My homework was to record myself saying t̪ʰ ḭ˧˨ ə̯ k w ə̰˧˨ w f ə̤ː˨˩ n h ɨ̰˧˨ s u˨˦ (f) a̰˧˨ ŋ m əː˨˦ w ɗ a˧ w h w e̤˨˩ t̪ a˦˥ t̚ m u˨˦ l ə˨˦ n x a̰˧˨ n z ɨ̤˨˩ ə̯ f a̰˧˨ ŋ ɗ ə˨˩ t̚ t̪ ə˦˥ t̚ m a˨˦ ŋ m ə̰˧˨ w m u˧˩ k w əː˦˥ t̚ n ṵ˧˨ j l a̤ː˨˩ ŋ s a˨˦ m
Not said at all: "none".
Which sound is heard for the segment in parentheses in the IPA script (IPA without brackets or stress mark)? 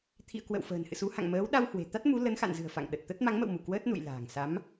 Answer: h